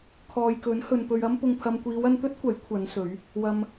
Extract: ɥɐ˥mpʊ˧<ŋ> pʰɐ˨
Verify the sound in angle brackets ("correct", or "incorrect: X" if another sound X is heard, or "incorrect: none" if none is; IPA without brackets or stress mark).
correct